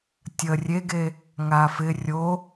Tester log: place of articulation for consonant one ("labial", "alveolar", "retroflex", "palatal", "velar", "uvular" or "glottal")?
alveolar